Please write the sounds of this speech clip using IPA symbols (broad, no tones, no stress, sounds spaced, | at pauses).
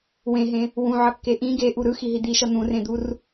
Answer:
w ẽ ɦ ẽ | w ũ ʕ ʌ kː e ʔ ĩ ɡ e ʔ u ɾ ɯ x i ɦ i d̪ i ʃ ʌ n̪ ũ r ẽ d̪ u r